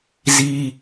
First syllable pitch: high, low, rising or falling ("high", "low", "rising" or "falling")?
high